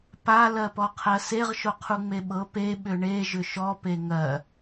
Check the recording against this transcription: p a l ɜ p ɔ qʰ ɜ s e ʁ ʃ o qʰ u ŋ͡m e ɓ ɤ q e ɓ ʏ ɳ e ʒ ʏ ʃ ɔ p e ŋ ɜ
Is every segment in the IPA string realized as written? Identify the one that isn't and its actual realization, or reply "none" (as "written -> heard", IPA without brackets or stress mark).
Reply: q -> p